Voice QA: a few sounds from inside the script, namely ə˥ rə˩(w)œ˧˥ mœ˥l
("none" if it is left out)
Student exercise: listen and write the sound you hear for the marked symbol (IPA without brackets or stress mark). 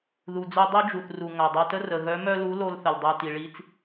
ɣ